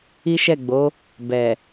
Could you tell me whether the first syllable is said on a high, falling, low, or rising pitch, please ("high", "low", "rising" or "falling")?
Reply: high